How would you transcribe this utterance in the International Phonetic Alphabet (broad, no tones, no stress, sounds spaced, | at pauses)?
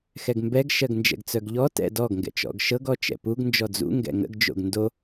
x ɛ ɡ m b ɛ ɡ ʃ ɜ ɡ n d͡ʒ ɛ̰ ɡ t͡s œ ɡ ʎ ɔ t ɛ̰ d ɔ ɡ ŋ ɡ ɛ̰ t͡ʃ ɔ̰ ɡ ʃ ɤ ɡ ɔ t͡ʃ ɛ̰ p u ɡ n d͡ʒ ɔ d͡z ṵ ŋ ɡ ɛ̰ ŋ ə̰ ɡ d͡ʒ o̰ ɡ n d o